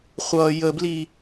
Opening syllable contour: low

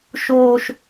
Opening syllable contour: high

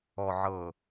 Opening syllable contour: low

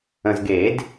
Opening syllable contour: low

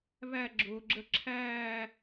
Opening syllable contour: falling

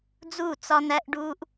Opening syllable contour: falling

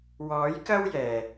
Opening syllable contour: rising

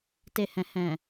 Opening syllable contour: low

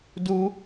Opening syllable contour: high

